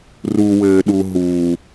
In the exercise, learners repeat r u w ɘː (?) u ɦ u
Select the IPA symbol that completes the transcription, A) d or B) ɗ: B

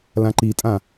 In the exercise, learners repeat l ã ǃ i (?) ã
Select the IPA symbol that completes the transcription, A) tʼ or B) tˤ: A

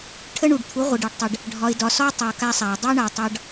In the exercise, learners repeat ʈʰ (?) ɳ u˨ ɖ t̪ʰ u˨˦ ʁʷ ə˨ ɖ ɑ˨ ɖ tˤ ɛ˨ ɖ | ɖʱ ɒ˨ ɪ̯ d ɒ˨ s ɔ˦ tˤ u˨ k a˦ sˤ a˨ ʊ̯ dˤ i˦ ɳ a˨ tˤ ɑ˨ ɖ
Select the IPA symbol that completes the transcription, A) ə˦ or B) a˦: A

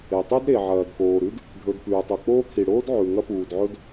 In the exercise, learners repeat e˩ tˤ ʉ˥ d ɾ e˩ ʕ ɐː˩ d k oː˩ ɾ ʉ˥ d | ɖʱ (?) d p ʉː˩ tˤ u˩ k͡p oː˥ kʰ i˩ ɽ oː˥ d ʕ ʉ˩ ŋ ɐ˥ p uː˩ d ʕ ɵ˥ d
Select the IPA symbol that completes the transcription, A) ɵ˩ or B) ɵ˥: A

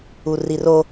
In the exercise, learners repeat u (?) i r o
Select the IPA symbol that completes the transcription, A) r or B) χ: A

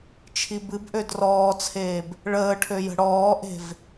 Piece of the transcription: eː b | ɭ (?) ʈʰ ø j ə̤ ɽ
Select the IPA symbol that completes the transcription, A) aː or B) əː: B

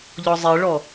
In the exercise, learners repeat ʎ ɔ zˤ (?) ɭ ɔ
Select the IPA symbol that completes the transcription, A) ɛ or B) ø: A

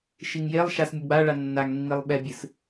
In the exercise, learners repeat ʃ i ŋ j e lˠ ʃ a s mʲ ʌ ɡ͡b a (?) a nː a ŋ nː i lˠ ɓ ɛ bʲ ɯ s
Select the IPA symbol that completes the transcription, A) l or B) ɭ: B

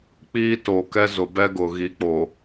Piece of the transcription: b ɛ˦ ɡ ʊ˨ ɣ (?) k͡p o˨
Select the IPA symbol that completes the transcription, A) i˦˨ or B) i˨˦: B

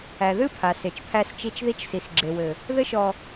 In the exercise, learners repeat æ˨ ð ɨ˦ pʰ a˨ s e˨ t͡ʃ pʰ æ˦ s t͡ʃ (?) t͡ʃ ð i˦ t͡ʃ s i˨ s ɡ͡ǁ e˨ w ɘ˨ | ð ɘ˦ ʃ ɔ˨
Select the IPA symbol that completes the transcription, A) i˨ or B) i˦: B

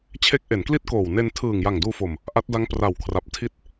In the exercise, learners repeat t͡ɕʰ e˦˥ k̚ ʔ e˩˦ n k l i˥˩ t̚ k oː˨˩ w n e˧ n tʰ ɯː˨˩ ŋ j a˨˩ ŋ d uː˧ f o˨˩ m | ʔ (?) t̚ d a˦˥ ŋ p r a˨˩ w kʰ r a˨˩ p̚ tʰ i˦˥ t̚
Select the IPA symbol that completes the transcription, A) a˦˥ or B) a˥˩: A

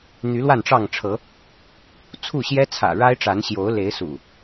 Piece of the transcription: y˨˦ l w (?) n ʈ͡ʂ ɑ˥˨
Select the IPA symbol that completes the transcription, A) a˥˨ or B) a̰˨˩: A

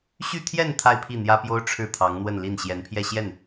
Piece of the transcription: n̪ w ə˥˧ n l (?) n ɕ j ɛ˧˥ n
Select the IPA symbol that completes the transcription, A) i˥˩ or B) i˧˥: A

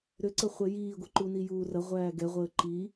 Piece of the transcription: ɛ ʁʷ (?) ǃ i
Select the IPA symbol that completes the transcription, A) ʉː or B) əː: B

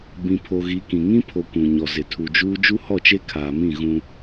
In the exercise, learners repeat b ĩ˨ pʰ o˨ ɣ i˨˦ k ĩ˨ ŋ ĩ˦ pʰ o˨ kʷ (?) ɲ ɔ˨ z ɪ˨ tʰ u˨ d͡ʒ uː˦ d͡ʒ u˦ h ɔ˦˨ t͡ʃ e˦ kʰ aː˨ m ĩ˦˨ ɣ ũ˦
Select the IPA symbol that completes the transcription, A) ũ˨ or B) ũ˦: A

